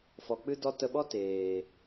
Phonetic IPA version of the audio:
f ɔ˨ k͡p ɨ˦ d ɔ˦ t ə˧ ɓ ɔ˦ t eː˨

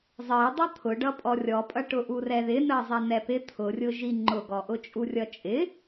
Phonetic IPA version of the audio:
zˤ ɜ dˤ ʌ t̪ʰ ʊ ɖ ʌ pʼ ɔ rʲ ɔ pʼ ʌ ʈ ʊ ʔ u r ɛ ð ɪ n ɜ zˤ ɛ n ɛ p ɪ t̪ʰ ʊ rʲ ʊ ʒ i ŋ͡ǃ ʊ ɡ ɔ ʔ ʊ t͡ʃʼ u rʲ ʌ t͡ʃʼ ɪ

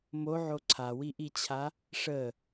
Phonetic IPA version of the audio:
m o ʕ o ǀʰ a w i ʔ i t͡ɕʰ a | ʂ ə

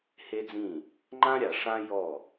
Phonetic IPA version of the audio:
h e˦ d͡z ĩ˦˨ | ŋ͡ǃ ã˦ ɾʲ a˨ ʂ ã˦ j ɔ˦˨

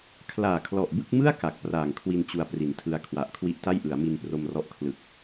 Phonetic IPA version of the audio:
kʰ l aː˨˩ kʰ l ɔ˨˩ ʔ b ɯ˥˩ k̚ m ɯ˥˩ a̯ k a˨˩ k̚ p r aː˨˩ ŋ kʰ w i˧ n t͡ɕ u˧ a̯ p r i˩˦ n tʰ ɯ˧ a̯ kʰ w a˨˩ ʔ kʰ w i˦˥ ʔ t a˥˩ j ʔ ɯ˩˦ a̯ m i˧ n p r o˧ m r ɔ˦˥ ʔ kʰ l ɯ˨˩ k̚

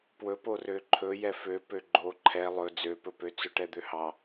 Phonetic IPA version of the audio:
p w ɵ p o r ø ǃʰ ɵ j ɛ f ø p ø ɡ͡ǃ o ǃʰ ɛ lˠ ɵ d͡z ø p ɵ p ø t͡s ɵ ʈ ɛ d̪ ø h ɑ

